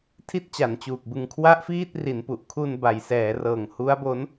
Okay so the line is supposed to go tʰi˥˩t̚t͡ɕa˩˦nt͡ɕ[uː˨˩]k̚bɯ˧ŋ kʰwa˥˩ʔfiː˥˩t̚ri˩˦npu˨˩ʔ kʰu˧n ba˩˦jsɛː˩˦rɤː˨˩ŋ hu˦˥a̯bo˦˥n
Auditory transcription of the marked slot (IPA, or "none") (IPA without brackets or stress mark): uː˨˩